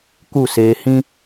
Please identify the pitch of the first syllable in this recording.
falling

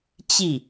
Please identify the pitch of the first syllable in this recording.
falling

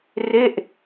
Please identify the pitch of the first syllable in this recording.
falling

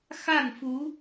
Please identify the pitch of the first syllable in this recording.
falling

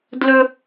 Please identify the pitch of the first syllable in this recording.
high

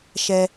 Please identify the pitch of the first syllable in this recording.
high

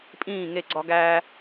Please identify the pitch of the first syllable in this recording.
falling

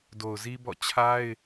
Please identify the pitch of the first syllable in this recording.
low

